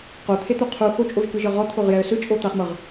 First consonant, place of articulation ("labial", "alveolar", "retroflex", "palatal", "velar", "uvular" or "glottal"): uvular